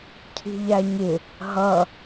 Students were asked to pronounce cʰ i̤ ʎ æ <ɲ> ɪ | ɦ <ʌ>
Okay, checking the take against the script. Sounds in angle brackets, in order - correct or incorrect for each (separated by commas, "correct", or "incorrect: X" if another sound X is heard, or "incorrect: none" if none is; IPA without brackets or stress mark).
correct, correct